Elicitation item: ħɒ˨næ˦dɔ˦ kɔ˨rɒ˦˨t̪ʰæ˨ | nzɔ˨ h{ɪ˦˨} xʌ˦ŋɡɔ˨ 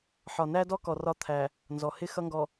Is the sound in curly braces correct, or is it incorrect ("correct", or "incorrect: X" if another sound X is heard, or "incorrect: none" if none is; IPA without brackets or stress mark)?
incorrect: ɪ˦